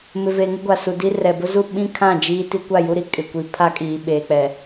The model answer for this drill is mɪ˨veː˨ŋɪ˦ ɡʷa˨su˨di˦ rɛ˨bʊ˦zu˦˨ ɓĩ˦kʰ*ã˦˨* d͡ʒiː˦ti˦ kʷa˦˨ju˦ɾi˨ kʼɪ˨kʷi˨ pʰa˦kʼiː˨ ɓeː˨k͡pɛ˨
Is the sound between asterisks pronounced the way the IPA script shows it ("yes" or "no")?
yes